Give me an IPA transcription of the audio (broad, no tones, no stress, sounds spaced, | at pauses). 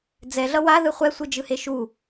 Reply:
d͡z ɛ ɮ ʌ w a ð ɯ χʷ ɛ sʷ ɯ d͡ʒ ɯ h e ʃ u